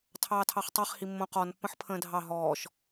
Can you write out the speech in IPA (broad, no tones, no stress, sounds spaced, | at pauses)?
tʰ ɑː tʰ ɑ χ tˤ ɛ χ h i mː õ q ɔ n pː ə̃ ħ pʰ ə̃ː dʱ ɑ ɦ ɔː ʃ